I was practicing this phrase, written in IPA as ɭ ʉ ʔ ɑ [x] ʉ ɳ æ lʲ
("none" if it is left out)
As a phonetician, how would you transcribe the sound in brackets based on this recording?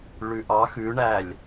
x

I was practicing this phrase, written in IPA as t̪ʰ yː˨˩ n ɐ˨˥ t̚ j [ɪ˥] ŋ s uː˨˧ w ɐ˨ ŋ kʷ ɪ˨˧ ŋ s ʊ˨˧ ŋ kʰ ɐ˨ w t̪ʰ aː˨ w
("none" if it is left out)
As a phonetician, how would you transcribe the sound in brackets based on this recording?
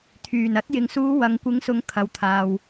ɪ˨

